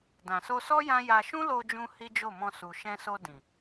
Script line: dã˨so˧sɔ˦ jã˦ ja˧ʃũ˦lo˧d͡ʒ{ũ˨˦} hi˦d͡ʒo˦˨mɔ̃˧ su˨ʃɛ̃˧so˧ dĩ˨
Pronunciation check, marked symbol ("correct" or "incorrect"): incorrect